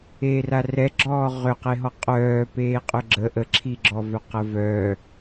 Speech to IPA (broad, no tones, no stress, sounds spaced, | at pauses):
eː r a r ɛ ɡ͡ǁ ɔː ʁ ʏ q e ɦ ɔ qʼ œː p eː qʼ ʏ ɡ͡ǁ ə ʔ ə ǁʰ i ɡ͡ǁ ɔ v œ q ə v œ